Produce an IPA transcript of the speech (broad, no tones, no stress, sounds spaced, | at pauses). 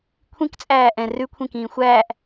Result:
kʷʰ ĩ k t͡sʼ æː ʔ ɛ̃ r ʉ kʷʰ ĩ k ĩː xʷ æː ʔ